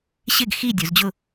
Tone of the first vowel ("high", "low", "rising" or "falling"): falling